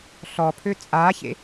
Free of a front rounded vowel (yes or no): no